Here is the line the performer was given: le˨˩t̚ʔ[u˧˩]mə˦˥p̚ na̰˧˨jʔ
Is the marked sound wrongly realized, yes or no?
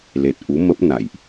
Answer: yes